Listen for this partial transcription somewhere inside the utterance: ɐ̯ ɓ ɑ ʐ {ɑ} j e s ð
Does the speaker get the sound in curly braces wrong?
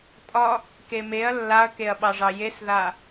no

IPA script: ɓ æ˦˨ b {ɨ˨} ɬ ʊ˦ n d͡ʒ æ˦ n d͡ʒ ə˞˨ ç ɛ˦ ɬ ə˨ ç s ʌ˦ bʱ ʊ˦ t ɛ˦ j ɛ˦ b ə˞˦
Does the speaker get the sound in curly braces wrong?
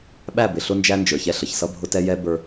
yes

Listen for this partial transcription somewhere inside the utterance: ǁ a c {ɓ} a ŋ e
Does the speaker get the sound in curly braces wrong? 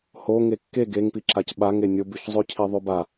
no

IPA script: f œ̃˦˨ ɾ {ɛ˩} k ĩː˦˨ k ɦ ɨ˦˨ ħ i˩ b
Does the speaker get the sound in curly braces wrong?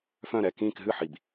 yes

